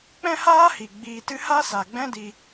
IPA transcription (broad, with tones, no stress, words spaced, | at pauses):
k͡pɛ̃˦haː˦hi˨ ɡ͡biː˧tɨ˦ ha˦sa˨ɡ͡bɛ̃˦di˧